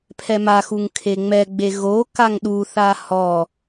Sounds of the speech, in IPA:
pʰɛmaxuŋ kʰeŋ͡mɛɡ͡be ɣo kaŋɗuθa hɔ

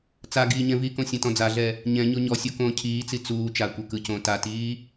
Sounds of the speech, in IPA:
t͡saɡiː ɲɛ̃vikõ sʲãtɔ̃d͡zaɮɛ | ɲɛ̃ ɲoɲɔsʲo kõːcʰiːt͡si t͡suː t͡ʃakʷe kɯcõː tatiː

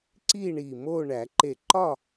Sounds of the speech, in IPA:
ǀi˥˨ ɳi˧˩mo˥˨ ɳæ˨˩˦ǃe˧˩ǃɒ˥˨

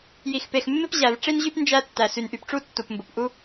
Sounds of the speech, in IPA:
ji˩xpe˩xmːɪ˥p ʑæ˩v ʈ͡ʂi˥nʑy˥p nd͡ʒæ˥tːæ˩ sy˩nʔy˩pʈ͡ʂu˥ tːu˩pmbo˩pʔu˥

